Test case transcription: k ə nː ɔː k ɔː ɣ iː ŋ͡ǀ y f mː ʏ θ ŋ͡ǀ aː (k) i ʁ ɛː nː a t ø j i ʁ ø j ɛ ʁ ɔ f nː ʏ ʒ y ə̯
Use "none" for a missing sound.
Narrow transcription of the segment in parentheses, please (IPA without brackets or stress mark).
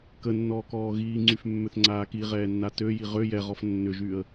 k